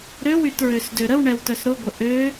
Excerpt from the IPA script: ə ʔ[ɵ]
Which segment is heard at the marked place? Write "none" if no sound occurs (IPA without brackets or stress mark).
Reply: ø